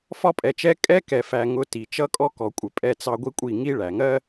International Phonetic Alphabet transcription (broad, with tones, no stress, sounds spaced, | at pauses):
f ɒ˧ pʼ ɛ˨ t͡ʃ ɛ˧ kʼ ɛ˦ k ɛ˨ f æ˨ ŋ ʊ˧ t i˨ t͡ʃ ʌ˦ kʼ ɔ˦ k ɔ˨ kʷʼ ɪ˨ pʼ ɛ˦ t͡s ɑ˦ ɡʷ i˦ kʷʼ i˦˨ ŋ i˦ ɭ æ˨ ŋ ɜ˦